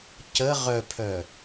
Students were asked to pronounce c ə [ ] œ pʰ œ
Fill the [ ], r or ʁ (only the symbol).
ʁ